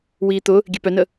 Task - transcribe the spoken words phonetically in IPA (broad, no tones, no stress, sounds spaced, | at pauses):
w iː t̪ ʊ | ɡʲ e p œ n ə